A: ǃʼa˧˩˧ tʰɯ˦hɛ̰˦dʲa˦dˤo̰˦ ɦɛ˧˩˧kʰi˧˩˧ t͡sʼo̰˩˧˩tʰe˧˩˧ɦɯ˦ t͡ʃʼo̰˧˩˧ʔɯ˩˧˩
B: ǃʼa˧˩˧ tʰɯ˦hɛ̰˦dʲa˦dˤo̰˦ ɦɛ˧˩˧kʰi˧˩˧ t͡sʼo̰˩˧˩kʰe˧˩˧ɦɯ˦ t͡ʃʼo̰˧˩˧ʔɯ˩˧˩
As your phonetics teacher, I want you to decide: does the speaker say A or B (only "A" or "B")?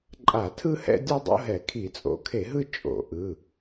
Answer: B